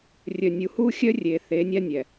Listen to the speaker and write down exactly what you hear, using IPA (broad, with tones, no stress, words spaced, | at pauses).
rʲœ˨nʲu˨hu˦ xʲœ˦rʲe˨ θe˨˦nʲa˦nʲɛ˨